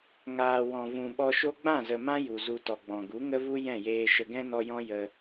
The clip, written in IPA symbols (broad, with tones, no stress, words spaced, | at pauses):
ŋaː˨ wɔ̃˨vũ˨ɓɔ˧ʃo˦ ɡ͡bã˦˨zə˨mã˦ ju˨zu˧tɔ˨ɡ͡bɔ̃˨ ɡu˨˦ŋə˦vu˦ jɛ̃˦˨jeː˧ ʃə˨ɡɛ̃˦nɔ˧jɔ̃˦ jə˧